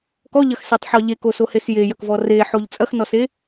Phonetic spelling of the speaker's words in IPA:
kɔʎɐxsetˤħɔ ʎekosohes jejɐkvɔ reħoʎ t͡sʼɐxnɔse

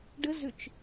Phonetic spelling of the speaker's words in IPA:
ɖəzʏt͡ʃ

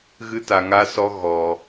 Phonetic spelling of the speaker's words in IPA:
ɣɨ˦ta˧ŋa˦sɔ˦ ɣɔ˧

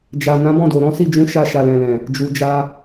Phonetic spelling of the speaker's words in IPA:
d͡ʒa˨ nã˨˦bɔ̃˦˨do˨ ɾɔ̃˨˦si˦˨ d͡ʒũ˨˦ ʃa˧ʃa˨lɛ̃˨lɛ̃˨ | d͡ʒu˨d͡ʒa˧

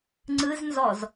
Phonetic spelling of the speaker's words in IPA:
ŋ͡ǀɯznzɔz

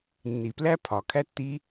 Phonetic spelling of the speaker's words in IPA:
nːi˨plæ˦pʰɒ˨ kʰæ˦tːi˦

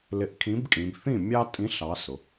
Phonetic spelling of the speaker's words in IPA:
lɪ˨˥ʔkʰĩ˨˥bkʼĩ˩˧b θĩ˥˩mʲɑ˦tʼĩ˨˥ ɬɑ˨˥sʊ˩˧

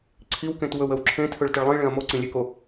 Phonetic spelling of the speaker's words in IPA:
ǀʰiwkẽt wɵwəwǁʰẽtʰɵɭ təɭlˠĩɭẽɐ̯ moǀĩlʲeko

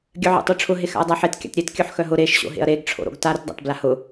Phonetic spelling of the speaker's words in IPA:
ɡʲœʕḛtˤoʈ͡ʂʰʊ ɦexa̰ɐ̯dˤaħet kʲa̰tɾʲetkʲœħ xœɦʊ ɾeʃɕo̰ ɦḛɐ̯ɾeɡʈ͡ʂʰo̰ɾo̰ɡ taɾʊtdˤa̰t blahʊ

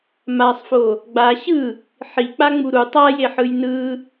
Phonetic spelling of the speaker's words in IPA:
masˤfo | ɡ͡ba ɕɯ | ħik͡pa ŋ͡muɾu tˤajeħɯj nɯ

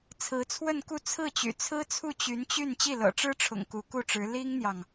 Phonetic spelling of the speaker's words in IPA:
t͡sʰɹ̩˧˥t͡sʰwə˥˧nku˥˧ t͡sʰɹ̩˥˩t͡ɕy̰˨˩t͡sʰɹ̩˥t͡sʰu˥˩ t͡ɕy˧˥nt͡ɕy˥˧n t͡ɕi˥˩lɤ̰˨˩ʈ͡ʂɻ̩˥ʈ͡ʂʰʊ̰˨˩ŋ ku˧˥ku˥˩ʈ͡ʂɻ̩˧˥ li˥ŋn̪jɑ˨ŋ

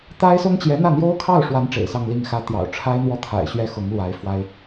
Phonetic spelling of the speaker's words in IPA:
t̪a˥ɪ̯sʊ˥ŋ t͡ɕjɛ˧˥n̪ä˥˩ n̪jo˥ʊ̯kʰɑ˥˩ʊ̯ʂwa˧˥n ʈ͡ʂḛ˨˩ɪ̯sɑ˥˧ŋli˥˩ŋxä˥ t̪jɑ̰˨˩ʊ̯ʈ͡ʂʰa˥ɪ̯n̪wɔ˥˩ t̪ʰa̰˨˩ɪ̯ɕɥɛ˥xʊ˧˥ŋlwa˧˥ɪ̯ fwa˥ɪ̯

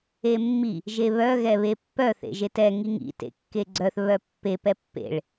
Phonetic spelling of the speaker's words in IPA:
emːi | ʒeβœ ɣɛβepːœ θḛʒetɛ ŋiŋḭ tḛkːeɡ͡ǀœθ βœpːe pɛpːḛɭ

